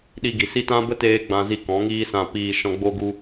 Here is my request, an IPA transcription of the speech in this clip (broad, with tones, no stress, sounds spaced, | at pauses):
ɗ i˧ ɡ i˨ s i˦ t ã˦ b ə˦ t eː˦ ɡ͡b ã˧ z i˧ k ɔ̃˨˦ ŋ iː˦ s ã˧ p iː˧ ʃ ɔ̃˧ ɡ͡b o˦ ɡ u˦